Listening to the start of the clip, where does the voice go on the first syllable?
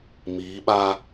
rising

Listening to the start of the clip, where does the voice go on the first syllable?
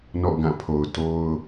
falling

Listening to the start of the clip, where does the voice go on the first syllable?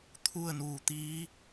falling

